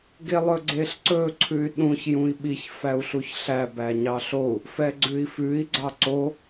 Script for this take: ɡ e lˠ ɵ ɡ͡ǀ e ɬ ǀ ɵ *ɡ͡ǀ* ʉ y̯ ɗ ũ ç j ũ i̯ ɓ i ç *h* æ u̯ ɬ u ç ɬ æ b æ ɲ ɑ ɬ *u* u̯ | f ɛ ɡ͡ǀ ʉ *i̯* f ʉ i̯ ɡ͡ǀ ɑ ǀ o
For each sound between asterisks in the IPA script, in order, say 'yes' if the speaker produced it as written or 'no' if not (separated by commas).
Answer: no, no, no, yes